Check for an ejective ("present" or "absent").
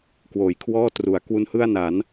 absent